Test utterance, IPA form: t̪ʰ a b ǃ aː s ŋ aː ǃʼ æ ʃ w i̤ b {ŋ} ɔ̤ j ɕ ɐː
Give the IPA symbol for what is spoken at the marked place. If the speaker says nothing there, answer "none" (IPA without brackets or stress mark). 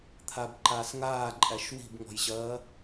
ŋ